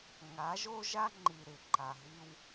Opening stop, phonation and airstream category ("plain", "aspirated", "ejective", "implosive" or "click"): click